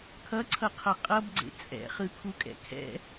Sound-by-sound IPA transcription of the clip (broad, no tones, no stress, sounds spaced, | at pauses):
kʰ ʌ ǀʰ ʌ qʰ ʌ qʼ ʌ b ɡ͡ǀ ḛ t͡sʼ ɛ̰ χ ɯ kʰ u kʼ ɛ̰ kʰ ɛ̰